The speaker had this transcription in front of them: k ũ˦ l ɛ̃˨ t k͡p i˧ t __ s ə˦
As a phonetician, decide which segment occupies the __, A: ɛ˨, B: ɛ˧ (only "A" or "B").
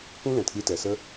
A